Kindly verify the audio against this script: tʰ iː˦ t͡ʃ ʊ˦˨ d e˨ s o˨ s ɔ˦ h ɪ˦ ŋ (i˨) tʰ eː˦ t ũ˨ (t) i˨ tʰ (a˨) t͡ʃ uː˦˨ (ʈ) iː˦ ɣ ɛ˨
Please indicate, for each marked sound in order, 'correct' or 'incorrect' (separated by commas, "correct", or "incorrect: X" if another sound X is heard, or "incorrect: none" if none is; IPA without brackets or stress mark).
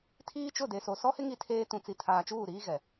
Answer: incorrect: i˦, incorrect: t͡s, incorrect: aː˨, incorrect: ɾ